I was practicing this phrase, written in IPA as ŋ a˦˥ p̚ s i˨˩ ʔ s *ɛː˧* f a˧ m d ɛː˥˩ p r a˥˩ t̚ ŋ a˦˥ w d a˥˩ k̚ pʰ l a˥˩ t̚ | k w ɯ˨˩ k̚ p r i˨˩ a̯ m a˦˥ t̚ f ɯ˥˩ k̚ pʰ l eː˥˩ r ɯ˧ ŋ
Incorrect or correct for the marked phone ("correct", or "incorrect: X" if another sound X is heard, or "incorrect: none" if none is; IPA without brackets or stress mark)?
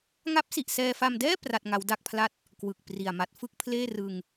correct